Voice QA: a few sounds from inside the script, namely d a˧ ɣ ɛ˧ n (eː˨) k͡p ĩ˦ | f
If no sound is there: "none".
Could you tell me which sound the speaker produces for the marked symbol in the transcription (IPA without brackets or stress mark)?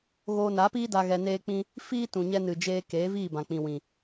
eː˦